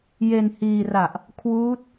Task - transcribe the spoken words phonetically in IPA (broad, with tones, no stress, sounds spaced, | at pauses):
j e˧ n h iː˧ r a˨˩ ʔ | kʰ w uː˦˥ t̚